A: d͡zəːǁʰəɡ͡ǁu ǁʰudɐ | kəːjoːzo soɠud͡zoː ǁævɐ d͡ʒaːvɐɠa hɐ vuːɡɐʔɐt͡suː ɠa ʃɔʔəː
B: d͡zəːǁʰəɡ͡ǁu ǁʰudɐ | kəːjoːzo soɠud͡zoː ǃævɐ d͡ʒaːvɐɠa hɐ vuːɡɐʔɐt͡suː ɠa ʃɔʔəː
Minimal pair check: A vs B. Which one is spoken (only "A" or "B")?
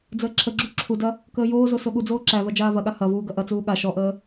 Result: A